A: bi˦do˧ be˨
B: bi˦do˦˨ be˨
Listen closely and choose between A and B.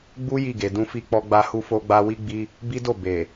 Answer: B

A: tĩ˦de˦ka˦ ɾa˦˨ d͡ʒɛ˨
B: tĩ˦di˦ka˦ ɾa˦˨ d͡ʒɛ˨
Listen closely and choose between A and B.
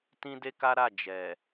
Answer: A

